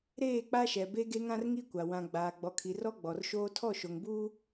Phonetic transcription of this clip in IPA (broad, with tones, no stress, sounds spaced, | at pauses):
ɾ eː˦˨ k͡p a˦ ʃ ɛ˨ b e˦ ɡ e˦ ŋ ã˦ r ŋ i˦ kʷ a˨ w ã˨ ɡ͡b aː˨ ɡ͡b ɔ˨ kʰ i˨ r ɔ˦ ɡ͡b ɔ˨ r ʃ oː˦ tʰ ɔ˦˨ ʃ o˨ ŋ b uː˦